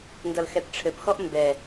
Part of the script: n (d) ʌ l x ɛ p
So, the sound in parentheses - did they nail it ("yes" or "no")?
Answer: yes